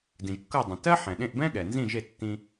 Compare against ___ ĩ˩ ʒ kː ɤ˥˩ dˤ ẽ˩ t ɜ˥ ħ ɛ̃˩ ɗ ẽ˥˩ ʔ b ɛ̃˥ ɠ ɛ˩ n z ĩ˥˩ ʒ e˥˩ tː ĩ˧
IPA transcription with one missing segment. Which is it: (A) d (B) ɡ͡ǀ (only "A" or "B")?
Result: A